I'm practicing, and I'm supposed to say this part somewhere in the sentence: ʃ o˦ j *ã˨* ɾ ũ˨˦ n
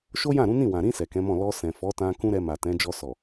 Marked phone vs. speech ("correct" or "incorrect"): incorrect